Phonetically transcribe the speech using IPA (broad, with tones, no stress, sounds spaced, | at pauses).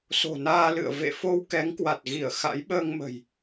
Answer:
s o̤˨˩ n aː˧ l ɨ̰˧˨ ə̯ v ḛ˧˨ f o˧ w k ɛ˨˦ ŋ k w a˨˩ t̚ ɣ i˧˩ ə̯ x a̰˧˥ j ɓ əː˧ ŋ m ə̤˨˩ j